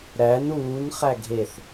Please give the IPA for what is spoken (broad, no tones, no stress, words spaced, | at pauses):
ɾæn uːn χæɡʱeθ